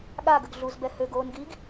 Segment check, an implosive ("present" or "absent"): present